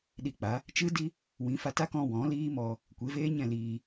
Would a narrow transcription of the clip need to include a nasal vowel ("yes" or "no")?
yes